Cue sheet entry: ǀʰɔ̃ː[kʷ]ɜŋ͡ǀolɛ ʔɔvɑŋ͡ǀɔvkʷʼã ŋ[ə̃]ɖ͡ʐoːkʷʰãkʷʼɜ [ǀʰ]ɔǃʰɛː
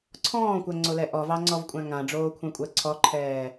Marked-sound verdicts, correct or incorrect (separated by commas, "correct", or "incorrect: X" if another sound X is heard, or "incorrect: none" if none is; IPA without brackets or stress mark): correct, incorrect: ã, correct